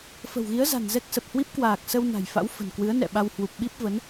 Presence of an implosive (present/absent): present